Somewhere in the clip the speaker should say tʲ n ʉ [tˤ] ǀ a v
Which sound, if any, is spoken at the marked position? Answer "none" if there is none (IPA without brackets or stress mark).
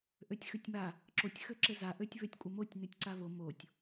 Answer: tʲ